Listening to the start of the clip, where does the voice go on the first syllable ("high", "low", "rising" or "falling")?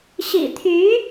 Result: low